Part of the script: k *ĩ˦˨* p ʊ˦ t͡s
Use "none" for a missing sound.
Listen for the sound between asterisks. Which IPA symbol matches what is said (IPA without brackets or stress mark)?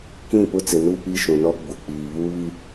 ĩ˦˨